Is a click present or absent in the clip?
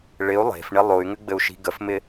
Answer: absent